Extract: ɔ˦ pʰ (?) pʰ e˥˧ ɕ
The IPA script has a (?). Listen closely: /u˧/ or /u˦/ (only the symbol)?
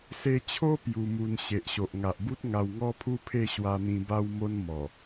u˦